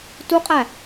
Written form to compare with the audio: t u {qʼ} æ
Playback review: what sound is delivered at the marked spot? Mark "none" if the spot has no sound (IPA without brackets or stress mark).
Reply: qʼ